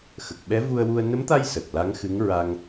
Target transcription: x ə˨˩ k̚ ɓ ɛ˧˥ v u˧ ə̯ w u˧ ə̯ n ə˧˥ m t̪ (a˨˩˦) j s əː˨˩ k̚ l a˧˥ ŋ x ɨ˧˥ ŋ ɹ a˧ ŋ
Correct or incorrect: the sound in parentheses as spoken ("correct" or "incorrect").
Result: incorrect